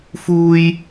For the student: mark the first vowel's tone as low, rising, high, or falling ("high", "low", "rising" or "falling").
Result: high